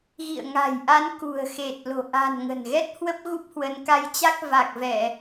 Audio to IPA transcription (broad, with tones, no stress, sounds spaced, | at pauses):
ɣ ḭ˧˨ ə̯ ŋ a̤˨˩ j ʔ a˨˦ n k ṳ˨˩ ə̯ x e˨˩ t̚ l o̤˨˩ ʔ a̤˨˩ n ŋ ə̤˨˩ n ɣ ɛ˦˥ t̚ h w ə˦˥ p̚ ɣ u˦˥ p̚ h w ə˨˦ n k a˧ j t͡ɕ a˦˥ k̚ v a˨˩ k̚ v ɛ˧˩˨